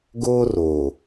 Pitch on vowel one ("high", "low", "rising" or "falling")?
high